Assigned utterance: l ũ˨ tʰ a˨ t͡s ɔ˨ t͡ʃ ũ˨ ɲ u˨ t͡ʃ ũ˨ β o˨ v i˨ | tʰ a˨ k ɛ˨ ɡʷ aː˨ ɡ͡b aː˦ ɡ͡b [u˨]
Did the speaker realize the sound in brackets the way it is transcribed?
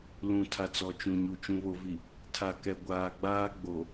no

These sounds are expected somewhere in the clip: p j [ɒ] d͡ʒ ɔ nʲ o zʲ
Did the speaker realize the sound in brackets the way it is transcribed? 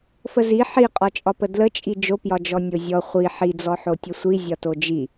yes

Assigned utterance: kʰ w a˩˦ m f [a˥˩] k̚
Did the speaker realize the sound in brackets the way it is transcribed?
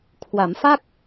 yes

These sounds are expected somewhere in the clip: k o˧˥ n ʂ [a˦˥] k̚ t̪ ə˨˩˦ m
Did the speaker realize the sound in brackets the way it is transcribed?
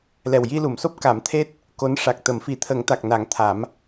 no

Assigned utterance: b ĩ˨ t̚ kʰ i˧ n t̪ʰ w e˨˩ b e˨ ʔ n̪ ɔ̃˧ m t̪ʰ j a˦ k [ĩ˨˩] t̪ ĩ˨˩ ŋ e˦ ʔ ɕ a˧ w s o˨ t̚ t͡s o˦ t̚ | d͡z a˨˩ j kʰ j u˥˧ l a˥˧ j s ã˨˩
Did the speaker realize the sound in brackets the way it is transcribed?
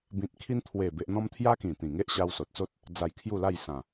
yes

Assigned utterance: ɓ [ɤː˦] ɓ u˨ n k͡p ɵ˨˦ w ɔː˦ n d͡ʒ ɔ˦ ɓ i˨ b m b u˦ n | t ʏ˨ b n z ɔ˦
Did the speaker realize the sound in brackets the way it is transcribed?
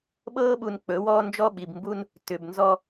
yes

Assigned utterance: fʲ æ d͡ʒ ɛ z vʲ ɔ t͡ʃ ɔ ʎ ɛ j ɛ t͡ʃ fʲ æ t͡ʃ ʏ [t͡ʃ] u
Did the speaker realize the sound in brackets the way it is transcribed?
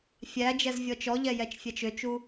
yes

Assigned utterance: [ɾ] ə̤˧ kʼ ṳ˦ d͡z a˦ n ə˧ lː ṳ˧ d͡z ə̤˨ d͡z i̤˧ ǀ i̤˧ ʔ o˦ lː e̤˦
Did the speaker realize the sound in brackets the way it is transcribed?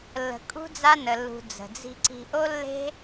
no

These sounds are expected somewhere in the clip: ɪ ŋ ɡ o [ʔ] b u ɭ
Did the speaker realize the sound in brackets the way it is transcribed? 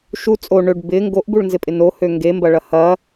yes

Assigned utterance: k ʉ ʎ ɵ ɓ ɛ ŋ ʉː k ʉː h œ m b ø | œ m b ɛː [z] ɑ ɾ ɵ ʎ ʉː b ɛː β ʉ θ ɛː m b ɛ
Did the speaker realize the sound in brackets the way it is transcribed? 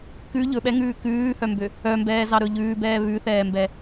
yes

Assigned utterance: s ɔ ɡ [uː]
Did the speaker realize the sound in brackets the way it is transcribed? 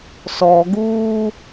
yes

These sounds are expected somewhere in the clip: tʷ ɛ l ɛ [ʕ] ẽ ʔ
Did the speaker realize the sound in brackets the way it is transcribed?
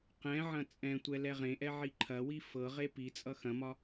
no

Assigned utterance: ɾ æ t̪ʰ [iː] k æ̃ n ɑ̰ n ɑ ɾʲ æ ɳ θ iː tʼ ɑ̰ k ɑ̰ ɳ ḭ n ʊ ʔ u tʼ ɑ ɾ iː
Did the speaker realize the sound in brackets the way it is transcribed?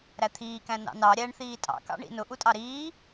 yes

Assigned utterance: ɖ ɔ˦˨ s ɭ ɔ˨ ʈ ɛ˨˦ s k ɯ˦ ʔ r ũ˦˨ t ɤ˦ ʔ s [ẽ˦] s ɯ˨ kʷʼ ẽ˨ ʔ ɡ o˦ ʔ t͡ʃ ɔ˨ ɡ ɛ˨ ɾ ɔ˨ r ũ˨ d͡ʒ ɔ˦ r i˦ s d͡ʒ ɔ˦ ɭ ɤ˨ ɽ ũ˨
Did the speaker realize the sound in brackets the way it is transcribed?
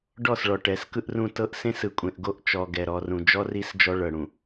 yes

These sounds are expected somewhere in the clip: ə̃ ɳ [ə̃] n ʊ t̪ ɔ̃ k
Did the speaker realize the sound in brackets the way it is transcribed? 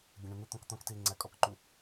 yes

